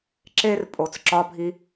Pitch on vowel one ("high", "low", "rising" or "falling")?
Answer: high